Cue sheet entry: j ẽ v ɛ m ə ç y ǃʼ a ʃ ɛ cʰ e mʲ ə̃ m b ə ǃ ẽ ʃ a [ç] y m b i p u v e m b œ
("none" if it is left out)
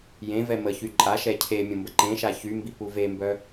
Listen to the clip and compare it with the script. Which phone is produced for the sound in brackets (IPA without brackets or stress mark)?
ç